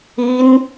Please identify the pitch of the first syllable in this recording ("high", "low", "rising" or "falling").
high